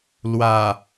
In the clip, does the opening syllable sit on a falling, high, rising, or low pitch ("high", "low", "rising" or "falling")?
low